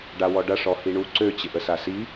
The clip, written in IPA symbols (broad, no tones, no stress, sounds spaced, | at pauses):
ɖ a w ɔ ɖ ɐ ʂ ɔ h i ɳ u ǀ ø t͡ɕ ɪ ʔ ə s a s i